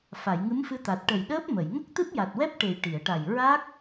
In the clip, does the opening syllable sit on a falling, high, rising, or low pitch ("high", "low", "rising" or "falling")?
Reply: low